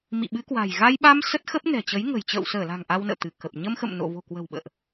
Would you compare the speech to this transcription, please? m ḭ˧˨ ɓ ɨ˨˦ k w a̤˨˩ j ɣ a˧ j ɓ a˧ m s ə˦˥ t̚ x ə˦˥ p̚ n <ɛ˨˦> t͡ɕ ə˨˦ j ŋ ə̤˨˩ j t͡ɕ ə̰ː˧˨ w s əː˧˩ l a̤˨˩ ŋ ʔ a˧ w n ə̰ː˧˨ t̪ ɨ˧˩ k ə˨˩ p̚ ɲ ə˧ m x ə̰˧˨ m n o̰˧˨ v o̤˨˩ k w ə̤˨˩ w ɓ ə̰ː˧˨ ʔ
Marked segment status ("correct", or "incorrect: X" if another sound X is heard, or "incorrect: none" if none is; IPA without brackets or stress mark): incorrect: ɛ̤˨˩